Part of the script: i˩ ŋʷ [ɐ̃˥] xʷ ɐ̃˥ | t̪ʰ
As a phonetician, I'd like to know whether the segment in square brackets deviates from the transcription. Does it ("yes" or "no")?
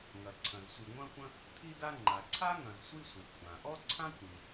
no